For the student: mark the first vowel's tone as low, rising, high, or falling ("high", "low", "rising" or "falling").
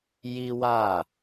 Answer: high